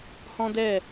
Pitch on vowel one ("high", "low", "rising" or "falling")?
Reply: high